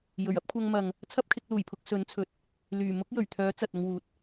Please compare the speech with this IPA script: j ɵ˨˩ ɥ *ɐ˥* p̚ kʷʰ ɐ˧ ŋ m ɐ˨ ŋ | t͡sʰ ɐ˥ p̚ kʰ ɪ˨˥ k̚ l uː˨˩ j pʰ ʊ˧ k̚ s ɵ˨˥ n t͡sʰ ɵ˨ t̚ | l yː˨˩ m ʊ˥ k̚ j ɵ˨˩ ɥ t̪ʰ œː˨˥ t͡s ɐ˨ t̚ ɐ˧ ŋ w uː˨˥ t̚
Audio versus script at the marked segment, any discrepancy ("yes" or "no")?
no